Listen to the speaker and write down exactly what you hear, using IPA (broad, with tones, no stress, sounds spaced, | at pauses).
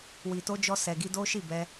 w i˨ t o˧ d͡ʒ ɔ˧ s ɛ˨ ɡ i˧ d o˦ ʃ i˦˨ b ɛ˧